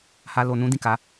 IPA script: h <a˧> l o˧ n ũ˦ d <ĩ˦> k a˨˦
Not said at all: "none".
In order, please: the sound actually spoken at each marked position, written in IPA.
a˧, ĩ˦˨

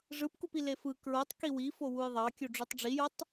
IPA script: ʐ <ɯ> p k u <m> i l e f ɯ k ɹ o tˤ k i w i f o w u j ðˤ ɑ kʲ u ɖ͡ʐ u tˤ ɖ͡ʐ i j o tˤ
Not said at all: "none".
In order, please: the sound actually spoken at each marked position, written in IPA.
ɯ, p

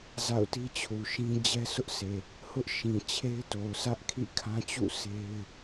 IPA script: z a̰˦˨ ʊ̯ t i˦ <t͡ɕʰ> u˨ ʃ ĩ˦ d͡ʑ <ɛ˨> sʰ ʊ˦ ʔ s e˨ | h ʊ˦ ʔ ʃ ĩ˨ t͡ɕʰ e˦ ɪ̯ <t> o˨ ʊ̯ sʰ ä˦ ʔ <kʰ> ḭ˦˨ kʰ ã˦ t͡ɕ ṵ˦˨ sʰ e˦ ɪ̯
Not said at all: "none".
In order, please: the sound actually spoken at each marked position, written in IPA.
t͡ɕʰ, ɛ˦, t, kʰ

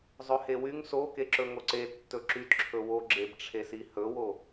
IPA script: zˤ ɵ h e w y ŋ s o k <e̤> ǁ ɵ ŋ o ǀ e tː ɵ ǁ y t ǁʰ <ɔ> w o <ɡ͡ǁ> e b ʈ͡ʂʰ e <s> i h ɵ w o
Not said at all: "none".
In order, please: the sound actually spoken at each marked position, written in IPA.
e, ɵ, ɡ͡ǁ, s

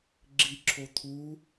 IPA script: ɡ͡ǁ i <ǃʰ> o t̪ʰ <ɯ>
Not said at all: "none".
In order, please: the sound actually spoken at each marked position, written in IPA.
ǁʰ, u

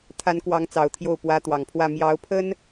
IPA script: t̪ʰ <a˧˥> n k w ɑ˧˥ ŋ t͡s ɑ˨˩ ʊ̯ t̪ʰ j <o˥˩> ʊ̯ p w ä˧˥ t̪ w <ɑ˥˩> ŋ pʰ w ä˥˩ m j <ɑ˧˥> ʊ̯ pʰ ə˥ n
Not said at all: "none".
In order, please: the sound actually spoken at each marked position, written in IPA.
a˧˥, o˥˩, ɑ˨˩, ɑ˧˥

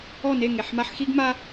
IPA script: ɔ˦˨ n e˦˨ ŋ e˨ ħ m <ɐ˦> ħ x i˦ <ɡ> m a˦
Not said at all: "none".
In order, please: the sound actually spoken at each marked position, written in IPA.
a˦, ɡ

